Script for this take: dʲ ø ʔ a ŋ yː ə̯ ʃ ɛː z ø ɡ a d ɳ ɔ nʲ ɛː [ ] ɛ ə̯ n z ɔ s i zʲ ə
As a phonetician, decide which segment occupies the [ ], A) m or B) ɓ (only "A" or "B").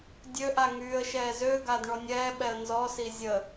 B